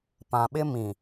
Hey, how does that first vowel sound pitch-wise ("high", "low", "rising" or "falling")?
low